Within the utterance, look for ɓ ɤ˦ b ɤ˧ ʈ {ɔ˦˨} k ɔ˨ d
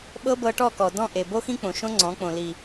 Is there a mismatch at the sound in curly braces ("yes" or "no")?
no